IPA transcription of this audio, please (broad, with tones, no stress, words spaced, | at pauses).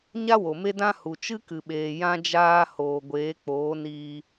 ɲa˦wo˨me˦dã˦ hu˨t͡ʃɨ˦kɨ˨ɓeː˨ jã˦d͡ʒaː˦ hoː˧ ɡʷeː˨˦k͡poː˨˦ niː˧